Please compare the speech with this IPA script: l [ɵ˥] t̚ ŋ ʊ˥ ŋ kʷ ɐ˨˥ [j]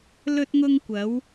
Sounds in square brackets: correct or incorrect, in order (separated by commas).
correct, incorrect